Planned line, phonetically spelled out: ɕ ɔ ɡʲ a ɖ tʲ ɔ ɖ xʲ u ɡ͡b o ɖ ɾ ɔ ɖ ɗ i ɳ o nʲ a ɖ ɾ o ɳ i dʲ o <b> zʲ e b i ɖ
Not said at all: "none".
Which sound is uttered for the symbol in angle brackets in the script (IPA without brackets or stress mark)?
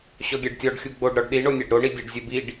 ɖ